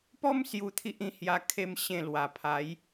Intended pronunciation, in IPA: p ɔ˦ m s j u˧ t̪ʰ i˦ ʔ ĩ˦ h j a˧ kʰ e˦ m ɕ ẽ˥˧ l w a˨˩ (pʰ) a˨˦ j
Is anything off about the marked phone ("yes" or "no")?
no